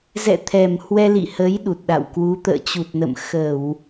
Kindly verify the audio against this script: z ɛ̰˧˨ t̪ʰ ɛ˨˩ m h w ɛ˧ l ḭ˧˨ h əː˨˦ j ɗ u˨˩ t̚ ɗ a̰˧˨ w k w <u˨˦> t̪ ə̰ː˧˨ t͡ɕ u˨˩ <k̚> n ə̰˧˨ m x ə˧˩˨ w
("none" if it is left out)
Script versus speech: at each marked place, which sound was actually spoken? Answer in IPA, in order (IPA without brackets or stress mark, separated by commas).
u˨˦, t̚